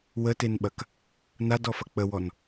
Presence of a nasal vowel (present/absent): absent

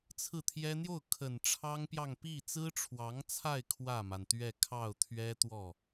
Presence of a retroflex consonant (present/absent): present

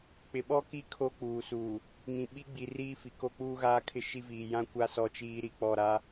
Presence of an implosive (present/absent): present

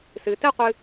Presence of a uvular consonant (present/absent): present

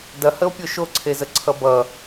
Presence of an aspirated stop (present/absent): present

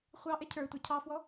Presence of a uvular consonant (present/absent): present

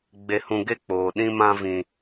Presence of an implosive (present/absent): present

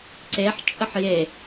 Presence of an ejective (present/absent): present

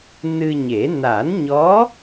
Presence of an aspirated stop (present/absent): absent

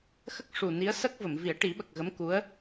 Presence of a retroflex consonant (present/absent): present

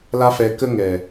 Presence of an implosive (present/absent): absent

